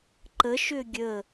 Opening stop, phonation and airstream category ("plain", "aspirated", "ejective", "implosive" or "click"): click